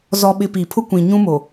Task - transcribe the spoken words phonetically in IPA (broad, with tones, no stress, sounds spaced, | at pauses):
z ɔ˨ ɓ ɪ˨ p i˨ pʰ ʊ˦ kʷ ĩ˨ ɲ ũ˦ m o˨